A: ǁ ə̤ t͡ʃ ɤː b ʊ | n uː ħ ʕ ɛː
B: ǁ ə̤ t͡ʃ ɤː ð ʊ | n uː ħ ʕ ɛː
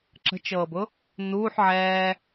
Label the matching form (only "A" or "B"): A